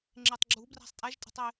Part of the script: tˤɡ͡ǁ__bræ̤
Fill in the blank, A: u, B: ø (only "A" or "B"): A